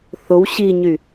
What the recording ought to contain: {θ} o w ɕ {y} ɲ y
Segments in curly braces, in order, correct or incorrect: correct, incorrect: i

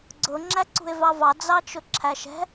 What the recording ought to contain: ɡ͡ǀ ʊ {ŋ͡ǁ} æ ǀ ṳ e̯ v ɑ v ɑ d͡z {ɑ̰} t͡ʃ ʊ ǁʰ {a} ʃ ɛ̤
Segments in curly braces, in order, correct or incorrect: correct, incorrect: ɑ, incorrect: æ

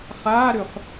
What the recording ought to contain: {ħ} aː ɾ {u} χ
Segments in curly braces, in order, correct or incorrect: incorrect: χ, incorrect: ʉ

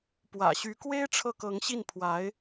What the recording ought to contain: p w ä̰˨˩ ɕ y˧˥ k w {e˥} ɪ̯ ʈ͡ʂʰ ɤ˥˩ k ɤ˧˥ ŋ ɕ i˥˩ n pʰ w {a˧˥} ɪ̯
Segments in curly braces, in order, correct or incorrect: correct, correct

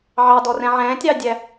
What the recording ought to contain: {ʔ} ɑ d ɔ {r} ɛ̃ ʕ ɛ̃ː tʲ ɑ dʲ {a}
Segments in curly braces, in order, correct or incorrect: incorrect: ʕ, correct, incorrect: æ

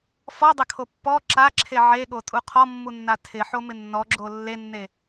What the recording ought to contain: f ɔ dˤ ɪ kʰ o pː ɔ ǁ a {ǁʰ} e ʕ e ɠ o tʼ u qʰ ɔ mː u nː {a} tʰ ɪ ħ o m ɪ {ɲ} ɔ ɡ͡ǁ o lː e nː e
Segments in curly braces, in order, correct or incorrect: correct, correct, incorrect: nː

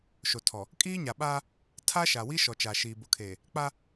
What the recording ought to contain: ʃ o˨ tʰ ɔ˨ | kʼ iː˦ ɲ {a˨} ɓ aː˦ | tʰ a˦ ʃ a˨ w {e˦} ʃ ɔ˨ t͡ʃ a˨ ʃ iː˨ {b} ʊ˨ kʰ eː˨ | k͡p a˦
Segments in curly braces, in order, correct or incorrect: correct, incorrect: i˦, correct

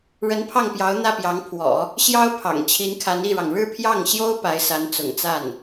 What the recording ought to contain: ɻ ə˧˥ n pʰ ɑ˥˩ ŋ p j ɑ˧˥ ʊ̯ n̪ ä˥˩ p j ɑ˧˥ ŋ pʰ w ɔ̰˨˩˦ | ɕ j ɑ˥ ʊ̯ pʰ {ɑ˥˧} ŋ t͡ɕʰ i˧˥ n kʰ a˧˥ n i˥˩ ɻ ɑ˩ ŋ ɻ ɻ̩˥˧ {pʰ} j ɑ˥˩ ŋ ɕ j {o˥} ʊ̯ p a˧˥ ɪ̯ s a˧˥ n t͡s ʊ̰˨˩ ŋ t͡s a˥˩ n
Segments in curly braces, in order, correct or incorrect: incorrect: ɑ̰˨˩, correct, correct

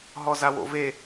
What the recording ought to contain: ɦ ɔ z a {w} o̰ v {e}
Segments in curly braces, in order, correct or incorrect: correct, correct

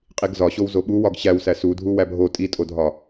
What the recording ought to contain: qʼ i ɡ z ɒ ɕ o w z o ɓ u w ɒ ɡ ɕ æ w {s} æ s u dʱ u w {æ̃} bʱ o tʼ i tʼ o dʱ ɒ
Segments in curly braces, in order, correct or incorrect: correct, incorrect: æ

